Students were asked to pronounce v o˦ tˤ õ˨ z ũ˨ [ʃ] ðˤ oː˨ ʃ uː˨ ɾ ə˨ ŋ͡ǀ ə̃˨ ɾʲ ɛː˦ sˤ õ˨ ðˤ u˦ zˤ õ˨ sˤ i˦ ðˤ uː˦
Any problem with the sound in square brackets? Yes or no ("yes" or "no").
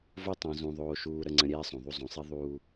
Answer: yes